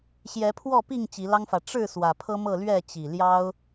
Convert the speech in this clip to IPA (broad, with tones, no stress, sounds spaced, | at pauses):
ɕ j ɛ˨˦ pʰ w ɔ˥˨ p i˥˨ ŋ t͡ɕ i˨˦ l ɑ˦ ŋ f ä˨ ʈ͡ʂ ɻ̩˥˨ s w ä˨˩ pʰ ɤ˦ m ɤ˥˨ l ɥ ɛ˥˨ t͡ɕ i˨˩ l j ɑ˦ ʊ̯